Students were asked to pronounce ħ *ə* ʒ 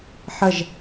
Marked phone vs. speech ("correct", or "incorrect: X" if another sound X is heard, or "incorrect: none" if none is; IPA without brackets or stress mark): correct